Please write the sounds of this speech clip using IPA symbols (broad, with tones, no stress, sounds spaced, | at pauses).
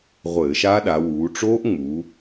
ʁʷ ɘː˧˩˧ ʃ aː˦˥ ɗ a˩˧ w u˩˧ ʈ͡ʂ oː˦˥ ʔ ŋ͡m uː˩˧